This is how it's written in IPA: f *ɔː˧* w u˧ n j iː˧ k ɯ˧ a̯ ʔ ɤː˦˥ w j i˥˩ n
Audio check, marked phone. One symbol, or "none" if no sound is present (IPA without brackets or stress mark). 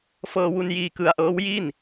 ɤː˧